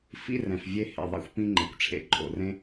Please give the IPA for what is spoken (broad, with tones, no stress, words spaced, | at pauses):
fḭ˥rɛ̃˨f vʲe˦hḛ˩ ðˤḭ˥xʷpĩ˥ŋ͡ǃḛ˩kʷʈ͡ʂʰḛ˨ ǃʼo̰˩rẽ˥